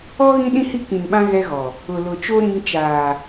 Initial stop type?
implosive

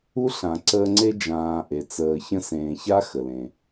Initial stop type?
click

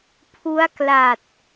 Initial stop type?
aspirated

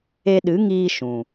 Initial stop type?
implosive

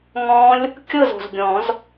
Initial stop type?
plain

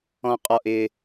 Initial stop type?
ejective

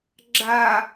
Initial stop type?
click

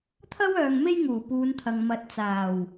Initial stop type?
aspirated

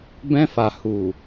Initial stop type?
plain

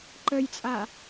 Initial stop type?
click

